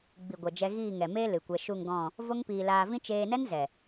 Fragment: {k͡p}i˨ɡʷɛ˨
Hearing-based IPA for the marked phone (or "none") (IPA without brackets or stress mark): ɡ͡b